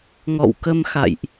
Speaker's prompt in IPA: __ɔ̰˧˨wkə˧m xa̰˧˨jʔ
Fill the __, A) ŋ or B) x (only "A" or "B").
A